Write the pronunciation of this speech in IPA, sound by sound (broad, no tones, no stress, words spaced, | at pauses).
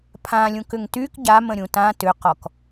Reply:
pʰãlʲũkʏŋ tyk ɟamə̃ɾʲũ tã tʏqɔk